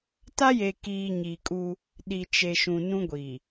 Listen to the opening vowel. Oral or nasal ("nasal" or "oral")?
oral